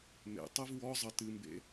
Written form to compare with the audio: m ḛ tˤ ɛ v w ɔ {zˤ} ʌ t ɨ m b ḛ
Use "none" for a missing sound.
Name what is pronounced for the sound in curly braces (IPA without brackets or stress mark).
zˤ